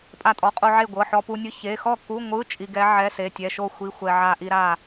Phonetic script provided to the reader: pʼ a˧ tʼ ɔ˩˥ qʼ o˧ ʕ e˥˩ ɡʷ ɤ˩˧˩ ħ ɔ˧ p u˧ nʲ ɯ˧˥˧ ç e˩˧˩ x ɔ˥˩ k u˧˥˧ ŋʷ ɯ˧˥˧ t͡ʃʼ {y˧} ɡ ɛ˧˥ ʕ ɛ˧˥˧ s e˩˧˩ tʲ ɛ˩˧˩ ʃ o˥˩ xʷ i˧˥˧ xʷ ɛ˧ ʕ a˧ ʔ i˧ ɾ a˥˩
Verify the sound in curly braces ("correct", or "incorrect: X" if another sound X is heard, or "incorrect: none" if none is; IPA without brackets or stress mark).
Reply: incorrect: i˧